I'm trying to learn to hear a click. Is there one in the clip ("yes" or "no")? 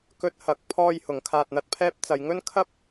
no